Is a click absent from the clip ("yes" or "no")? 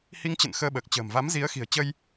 yes